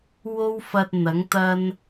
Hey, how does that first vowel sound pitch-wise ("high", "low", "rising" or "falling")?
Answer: high